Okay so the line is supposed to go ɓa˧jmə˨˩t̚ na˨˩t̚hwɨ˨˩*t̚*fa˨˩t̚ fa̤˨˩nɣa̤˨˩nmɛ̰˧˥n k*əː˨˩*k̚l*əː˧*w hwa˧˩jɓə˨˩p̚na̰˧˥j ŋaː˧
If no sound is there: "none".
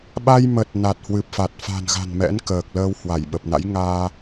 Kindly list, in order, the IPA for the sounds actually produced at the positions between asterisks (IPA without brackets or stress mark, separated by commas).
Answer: p̚, əː˨˩, əː˧